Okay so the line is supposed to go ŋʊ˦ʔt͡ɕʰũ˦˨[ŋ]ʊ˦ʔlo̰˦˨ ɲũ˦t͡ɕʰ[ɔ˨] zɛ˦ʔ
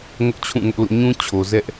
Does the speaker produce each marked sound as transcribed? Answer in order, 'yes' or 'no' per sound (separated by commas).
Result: yes, no